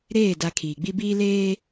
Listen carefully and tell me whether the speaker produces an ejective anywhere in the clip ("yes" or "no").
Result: no